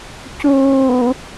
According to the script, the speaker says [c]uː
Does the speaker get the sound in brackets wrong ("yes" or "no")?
no